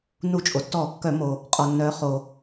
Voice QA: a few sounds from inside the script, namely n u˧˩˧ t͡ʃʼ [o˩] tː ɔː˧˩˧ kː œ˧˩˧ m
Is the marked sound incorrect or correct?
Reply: correct